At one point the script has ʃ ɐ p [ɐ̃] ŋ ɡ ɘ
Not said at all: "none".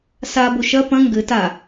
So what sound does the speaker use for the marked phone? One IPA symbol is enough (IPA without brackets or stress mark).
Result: ɐ̃